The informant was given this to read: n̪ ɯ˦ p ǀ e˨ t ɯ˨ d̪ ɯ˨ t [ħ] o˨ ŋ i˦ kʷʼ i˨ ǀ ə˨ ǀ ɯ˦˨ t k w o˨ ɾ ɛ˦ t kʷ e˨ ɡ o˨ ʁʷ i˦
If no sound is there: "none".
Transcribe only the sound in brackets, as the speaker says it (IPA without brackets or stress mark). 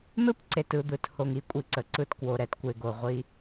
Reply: h